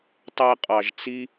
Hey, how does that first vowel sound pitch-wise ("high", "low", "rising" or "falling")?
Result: high